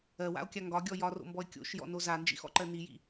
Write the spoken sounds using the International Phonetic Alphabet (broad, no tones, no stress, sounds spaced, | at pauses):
ɜ w a̰ o̯ kʲ a ŋ ɡ ɒ ɡʲ ɔ j ɒ r o̰ m b ɔ e̯ kʲ o̰ ʃ j ɔ̰ n o z a n d͡ʒ ḭ x ɔ̰ ǃ ɜ n i j ḭ